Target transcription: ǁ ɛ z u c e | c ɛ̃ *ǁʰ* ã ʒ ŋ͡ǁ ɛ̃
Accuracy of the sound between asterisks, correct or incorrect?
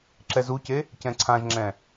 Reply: incorrect